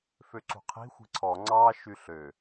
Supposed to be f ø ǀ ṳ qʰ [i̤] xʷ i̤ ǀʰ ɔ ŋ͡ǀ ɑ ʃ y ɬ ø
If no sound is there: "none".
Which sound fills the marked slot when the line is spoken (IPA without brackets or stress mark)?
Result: i̤